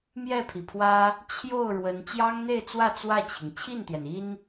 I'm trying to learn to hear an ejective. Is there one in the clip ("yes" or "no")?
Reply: no